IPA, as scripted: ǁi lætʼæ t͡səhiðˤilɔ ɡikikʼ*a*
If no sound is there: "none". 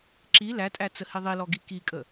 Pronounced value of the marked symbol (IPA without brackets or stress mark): ə